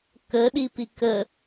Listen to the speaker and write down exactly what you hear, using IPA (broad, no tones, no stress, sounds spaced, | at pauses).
k ə ɗ i p i k ə